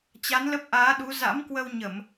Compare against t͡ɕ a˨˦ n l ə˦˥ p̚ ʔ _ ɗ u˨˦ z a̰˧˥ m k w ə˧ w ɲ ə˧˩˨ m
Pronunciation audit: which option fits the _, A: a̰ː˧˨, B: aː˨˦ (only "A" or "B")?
B